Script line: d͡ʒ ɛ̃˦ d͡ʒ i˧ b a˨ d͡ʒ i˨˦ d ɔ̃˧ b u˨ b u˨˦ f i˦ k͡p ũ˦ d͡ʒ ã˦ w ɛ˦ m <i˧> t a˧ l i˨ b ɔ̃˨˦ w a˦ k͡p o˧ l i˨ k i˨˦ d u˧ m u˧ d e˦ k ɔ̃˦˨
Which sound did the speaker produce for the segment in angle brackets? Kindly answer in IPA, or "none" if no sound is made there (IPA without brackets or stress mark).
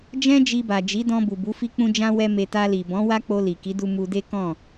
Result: e˧